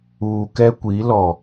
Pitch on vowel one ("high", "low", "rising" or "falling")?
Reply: low